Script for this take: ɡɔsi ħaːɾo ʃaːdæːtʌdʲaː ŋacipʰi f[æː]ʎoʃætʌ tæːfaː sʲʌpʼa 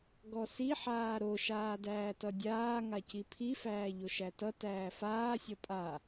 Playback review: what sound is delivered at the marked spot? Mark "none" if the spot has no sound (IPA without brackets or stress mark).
æː